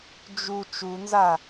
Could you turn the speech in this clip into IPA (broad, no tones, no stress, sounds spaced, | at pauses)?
d͡ʒ u t͡ʃ u n z a